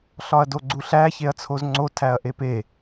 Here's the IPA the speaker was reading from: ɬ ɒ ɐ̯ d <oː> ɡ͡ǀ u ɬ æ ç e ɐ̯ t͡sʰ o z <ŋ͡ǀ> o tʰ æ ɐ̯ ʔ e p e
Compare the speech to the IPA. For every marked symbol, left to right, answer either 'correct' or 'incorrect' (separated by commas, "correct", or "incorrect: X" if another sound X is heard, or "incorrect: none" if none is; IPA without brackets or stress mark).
incorrect: o, correct